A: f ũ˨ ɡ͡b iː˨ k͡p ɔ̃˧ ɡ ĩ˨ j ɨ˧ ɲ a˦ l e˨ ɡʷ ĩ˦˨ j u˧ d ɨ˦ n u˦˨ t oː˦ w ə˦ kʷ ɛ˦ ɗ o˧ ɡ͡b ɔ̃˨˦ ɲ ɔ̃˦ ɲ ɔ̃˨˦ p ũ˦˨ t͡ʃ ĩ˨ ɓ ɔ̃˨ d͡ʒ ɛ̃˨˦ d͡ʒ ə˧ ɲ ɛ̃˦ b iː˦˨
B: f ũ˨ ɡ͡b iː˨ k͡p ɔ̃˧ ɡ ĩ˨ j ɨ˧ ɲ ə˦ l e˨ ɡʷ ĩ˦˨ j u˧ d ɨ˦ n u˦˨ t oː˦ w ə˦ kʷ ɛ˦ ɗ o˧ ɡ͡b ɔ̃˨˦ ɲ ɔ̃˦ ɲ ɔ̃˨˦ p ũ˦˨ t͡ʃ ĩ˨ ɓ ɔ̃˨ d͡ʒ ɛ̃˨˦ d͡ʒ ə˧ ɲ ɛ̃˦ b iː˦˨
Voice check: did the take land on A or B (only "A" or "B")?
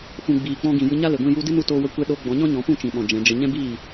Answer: A